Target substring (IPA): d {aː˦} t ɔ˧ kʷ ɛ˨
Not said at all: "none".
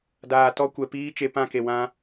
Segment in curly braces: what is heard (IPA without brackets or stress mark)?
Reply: aː˨